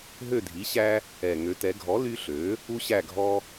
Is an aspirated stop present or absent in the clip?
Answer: absent